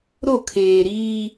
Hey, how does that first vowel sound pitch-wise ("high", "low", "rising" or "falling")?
falling